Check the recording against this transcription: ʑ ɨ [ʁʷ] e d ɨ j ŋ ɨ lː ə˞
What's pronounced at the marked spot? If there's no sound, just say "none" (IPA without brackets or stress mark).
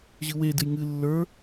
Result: w